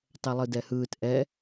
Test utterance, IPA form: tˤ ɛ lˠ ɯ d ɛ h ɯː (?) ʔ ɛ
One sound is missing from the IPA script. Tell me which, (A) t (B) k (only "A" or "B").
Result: A